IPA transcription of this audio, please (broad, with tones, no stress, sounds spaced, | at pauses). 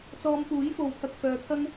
t͡s ɔː˧ m p uː˨˥ j f o˨˧ w pʰ ɐ˨ k̚ f œː˨ t̪ʰ ɐ˥ ŋ